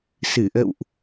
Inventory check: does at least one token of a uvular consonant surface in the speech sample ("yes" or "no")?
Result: no